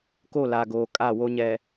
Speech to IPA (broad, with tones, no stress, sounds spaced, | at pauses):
k o˦˨ l a˨ ɡ oː˨ kʼ a˦˨ w o˦ ɲ ɛ˨